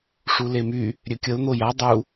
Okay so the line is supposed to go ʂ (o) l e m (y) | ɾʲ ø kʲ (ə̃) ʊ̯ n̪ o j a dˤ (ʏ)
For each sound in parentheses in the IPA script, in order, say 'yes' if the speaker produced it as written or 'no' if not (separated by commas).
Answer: no, yes, no, no